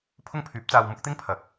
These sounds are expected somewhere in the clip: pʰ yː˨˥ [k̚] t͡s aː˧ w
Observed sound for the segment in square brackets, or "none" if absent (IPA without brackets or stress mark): p̚